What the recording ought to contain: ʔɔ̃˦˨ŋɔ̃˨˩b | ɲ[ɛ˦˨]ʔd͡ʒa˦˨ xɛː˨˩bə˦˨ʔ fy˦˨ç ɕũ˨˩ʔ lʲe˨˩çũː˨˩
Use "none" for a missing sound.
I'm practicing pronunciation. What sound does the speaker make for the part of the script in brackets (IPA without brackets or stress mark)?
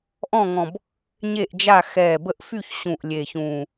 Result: e˦˨